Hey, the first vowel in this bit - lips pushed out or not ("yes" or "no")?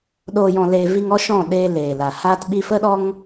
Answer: yes